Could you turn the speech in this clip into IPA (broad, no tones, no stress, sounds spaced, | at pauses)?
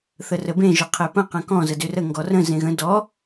θ ə r ə b ẽ ʒ ʊ qʰ e p ə̃ q ə̃ k ɔ̃ z ə d ʏ r ə ŋ ɡ ɔ r ə̃ z ẽ ɣ ə̃ d ɔ